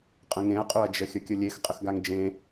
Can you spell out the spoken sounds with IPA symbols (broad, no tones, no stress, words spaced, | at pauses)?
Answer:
qʼə̃ŋẽɐ̯qʼoɐ̯d͡ʒə xʲəkʲəlʲex qʼəxɡaŋd͡ʒẽ